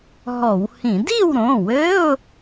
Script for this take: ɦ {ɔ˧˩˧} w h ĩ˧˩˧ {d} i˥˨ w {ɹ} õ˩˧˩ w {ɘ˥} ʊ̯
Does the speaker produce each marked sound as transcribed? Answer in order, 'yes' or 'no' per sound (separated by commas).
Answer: yes, yes, no, no